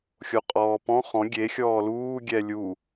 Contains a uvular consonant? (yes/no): yes